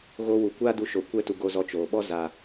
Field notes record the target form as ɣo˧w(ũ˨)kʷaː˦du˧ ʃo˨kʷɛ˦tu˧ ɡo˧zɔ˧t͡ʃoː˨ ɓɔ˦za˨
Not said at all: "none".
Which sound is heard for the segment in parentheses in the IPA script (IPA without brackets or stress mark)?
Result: u˨